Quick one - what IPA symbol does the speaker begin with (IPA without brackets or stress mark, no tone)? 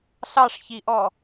ɬ